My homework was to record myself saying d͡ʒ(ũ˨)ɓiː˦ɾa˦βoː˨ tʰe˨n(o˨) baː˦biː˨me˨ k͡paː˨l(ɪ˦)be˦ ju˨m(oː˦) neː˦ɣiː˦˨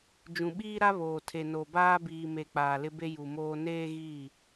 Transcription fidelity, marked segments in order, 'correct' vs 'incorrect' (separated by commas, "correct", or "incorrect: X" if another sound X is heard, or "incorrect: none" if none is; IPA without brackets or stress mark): correct, correct, correct, correct